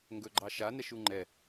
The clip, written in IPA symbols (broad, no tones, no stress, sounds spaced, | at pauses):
ŋ ɡ ɵ ɡ͡ǃ ɑ ʃ a n ɛ ʃ u ŋ͡ǃ ɛ